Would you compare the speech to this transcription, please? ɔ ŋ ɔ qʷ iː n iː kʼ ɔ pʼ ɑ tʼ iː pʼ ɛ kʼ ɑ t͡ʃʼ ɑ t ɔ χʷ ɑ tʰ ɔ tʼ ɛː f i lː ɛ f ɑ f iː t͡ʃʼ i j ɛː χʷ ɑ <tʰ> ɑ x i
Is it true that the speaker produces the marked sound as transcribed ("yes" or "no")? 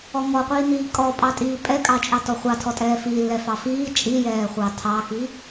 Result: yes